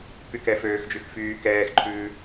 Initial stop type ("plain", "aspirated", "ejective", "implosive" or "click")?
plain